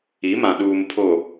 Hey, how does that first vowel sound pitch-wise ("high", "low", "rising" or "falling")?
rising